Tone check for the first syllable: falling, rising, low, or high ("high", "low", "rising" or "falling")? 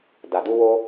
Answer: low